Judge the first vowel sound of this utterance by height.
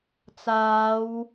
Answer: low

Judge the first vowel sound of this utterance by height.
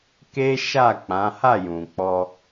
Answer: mid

